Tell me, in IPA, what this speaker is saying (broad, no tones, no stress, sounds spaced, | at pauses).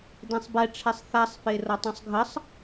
d ẽ sˤ b ɛ ʈ͡ʂʰ ɛ sˤ θ a sˤ f e r ʌ tˤ ẽ sˤ ɡʱ ə sˤ